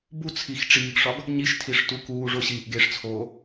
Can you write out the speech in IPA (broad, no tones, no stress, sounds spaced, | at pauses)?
b u t͡sʰ i x ʈ͡ʂ iː ɡ ʂ ɒ ɡ | ɲ i ʃ tʰ i ʂ t u k uː ʐ o ɕ iː ʔ ɡ e ʂ t͡sʰ oː